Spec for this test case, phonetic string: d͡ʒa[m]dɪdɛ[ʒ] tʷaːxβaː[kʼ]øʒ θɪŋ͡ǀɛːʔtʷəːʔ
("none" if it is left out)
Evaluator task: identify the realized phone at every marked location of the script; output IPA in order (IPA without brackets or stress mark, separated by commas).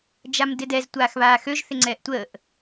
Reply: m, z, x